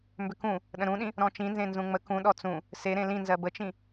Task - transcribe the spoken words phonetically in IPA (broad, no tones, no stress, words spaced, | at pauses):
mbʏkũ | ɗə̃ɾũɗĩ | ɾɔ̃t͡ʃĩnzẽ nzũŋ͡mə kũ ɗɔt͡sũ | seɾẽ lĩnzɜ bət͡ʃĩ